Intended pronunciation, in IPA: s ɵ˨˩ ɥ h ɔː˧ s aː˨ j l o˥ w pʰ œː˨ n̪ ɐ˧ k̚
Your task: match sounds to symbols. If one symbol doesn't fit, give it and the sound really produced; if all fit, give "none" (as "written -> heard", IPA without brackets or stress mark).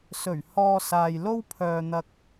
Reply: none